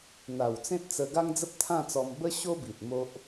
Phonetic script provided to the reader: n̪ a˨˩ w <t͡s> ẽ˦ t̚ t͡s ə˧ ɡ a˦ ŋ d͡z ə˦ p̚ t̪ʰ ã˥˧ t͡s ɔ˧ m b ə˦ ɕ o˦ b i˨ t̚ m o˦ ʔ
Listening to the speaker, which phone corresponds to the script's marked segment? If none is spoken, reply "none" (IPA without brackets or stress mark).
t͡s